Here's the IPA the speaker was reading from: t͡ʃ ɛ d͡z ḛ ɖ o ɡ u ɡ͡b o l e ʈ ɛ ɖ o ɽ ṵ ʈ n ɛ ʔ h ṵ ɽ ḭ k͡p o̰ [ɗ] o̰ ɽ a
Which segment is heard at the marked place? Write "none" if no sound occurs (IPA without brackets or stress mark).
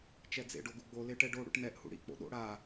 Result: ɗ